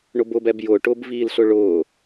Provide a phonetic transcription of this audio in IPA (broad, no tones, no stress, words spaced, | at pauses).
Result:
ɳʊbʊbɛb jʊːʈʊːbviːlɬʊ ɭʊː